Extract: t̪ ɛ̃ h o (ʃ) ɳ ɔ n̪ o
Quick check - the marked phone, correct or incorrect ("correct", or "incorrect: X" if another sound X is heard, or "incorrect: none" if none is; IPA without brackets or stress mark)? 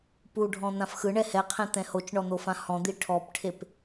incorrect: t͡ʃ